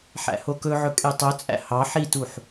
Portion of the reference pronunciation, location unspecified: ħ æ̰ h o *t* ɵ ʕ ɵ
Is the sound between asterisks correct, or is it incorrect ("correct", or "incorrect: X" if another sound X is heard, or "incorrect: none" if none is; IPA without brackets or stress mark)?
incorrect: k